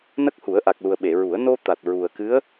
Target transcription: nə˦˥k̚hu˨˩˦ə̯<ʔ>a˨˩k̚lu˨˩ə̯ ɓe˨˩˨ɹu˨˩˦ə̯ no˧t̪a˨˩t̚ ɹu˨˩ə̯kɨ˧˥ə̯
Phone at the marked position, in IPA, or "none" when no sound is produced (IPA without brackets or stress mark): ʔ